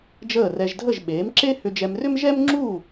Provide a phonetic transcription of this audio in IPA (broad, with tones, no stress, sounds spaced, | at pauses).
d͡ʒ əː˥˩ r ɛ˧ ʒ dʱ ə˥˩ ʒ ɓ eː˩˥ m ǁ e˥ h ʏ˧ d͡ʒ ɛ˧ m r ʏ˥ m ʒ ɛ˥ m ŋ͡ǁ uː˥˩